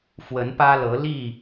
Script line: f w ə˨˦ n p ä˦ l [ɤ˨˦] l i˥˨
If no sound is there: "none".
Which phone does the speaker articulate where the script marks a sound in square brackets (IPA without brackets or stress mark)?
ɤ˨˦